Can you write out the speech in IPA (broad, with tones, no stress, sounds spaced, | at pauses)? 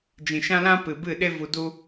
d͡ʒ ĩ˨ ʃ ã˦ l ã˦ p ɨ˨ b ɨ˦˨ ɗ e˦ v u˧ d u˦